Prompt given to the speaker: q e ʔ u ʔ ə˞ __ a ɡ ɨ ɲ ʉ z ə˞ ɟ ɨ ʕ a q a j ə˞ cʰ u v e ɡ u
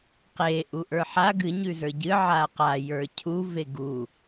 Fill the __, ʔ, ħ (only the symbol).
ħ